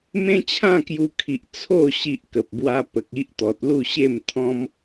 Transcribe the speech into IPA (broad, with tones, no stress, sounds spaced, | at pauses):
m ẽ˦ t͡ɕʰ ã˥˧ k j u˧ kʰ i˨ ʔ t͡sʰ o˥˧ ɕ i˦ ʔ k ə˨ p̚ b w a˦ p ə˨ k̚ i˦ ʔ t̪ ɔ˨ t̚ l u˥˧ ɕ e˥˧ m t̪ʰ ɔ̃˦ m